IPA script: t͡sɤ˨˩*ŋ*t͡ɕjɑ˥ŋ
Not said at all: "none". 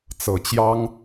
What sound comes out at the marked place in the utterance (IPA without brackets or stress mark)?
none